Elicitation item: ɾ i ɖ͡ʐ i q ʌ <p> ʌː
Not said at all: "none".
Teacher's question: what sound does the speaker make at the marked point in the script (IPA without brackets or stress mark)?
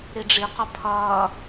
pʰ